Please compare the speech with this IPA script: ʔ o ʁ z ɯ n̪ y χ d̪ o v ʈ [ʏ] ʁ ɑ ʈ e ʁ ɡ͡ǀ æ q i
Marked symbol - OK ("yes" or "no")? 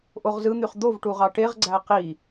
no